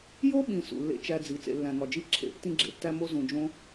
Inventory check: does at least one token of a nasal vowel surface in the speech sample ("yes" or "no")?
yes